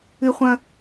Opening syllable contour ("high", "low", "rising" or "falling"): high